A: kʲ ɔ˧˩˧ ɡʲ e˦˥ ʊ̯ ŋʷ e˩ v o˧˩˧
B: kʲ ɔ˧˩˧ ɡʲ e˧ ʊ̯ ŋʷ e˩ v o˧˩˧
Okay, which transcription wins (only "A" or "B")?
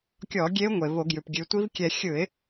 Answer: A